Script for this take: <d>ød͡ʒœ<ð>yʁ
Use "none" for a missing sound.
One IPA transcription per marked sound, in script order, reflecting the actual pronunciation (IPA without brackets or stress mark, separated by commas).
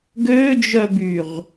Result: ɡ, b